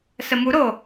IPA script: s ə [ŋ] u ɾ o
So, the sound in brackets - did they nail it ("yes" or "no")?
no